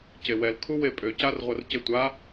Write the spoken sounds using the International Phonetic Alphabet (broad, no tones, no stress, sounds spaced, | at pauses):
c e w ɛ l kʰ u w e pʼ ø c a r ʁʷ ɐ r c e tʷ a